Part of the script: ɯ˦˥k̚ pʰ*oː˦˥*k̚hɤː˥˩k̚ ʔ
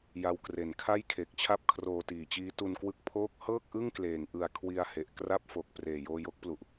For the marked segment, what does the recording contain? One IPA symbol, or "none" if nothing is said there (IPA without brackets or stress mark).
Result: oː˦˥